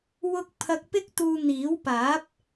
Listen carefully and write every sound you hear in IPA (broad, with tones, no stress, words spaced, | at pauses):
wʊ˧k̚ pʰɐ˧k̚pɪ˥k̚t̪uː˧ n̪iː˨˥wpaː˨˥p̚